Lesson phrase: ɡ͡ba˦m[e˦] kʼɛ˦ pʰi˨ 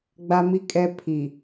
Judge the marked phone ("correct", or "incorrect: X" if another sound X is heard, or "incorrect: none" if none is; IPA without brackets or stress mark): incorrect: i˦